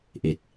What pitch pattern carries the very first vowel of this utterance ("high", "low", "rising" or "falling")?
low